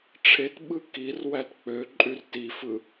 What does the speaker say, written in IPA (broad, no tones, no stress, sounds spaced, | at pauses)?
ʈ͡ʂʰ e t ɓ ɯ k i r w æ t k͡p ø ǃʼ y r t i f ɯ